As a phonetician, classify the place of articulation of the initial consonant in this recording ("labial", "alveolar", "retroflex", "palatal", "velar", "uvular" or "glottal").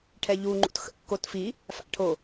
retroflex